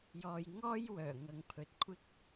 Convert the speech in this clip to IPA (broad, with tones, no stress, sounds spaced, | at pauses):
j ɔː˨ j ŋ ɔː˥ j w œː˨˩ ŋ ɐ˨ ŋ pʰ ɵ˨ t̚ kʷʰ ɪ˥ k̚